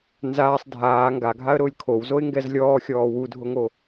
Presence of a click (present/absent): absent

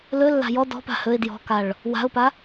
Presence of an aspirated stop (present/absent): absent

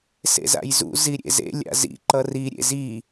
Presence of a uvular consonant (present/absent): absent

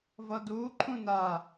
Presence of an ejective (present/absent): absent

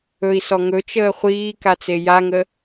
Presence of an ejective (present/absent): absent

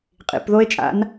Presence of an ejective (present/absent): present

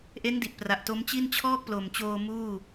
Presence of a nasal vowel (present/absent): absent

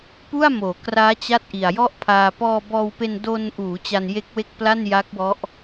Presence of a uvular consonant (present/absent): absent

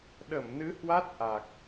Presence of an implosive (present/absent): present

